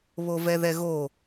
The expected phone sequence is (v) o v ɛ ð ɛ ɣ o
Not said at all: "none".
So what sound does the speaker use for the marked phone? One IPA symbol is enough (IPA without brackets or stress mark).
β